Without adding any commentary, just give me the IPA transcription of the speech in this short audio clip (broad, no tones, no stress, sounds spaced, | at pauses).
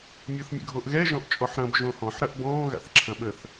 mʲ o θ mʲ ə̰ ɡʱ o ʔ ɣ ɛ ʒ ɔ̃ ʔ t͡ʃʼ ɔ ħ ɾ ɐ̃ b ʒ õ h ɔ̃ ħ ɾ ɐ ʔ b ɔ̃ː ɣ a̰ θ ǁʰ ɐ̃ ɓ ə θ